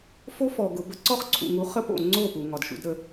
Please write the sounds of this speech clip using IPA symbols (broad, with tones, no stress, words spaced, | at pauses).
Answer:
fo˦fɔ˨ ɡʊ˨bə˦ ǀɔ˦χǀʰṵ˨ŋu˨˦ χə˦po̰˨ ŋ͡ǀo˦˨ pu˨ ŋɒ˨dʃṵ˧dɾə˨˦